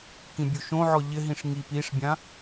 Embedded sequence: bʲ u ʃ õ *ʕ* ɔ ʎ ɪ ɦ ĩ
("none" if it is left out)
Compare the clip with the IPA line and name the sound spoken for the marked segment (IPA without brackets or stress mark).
ʕ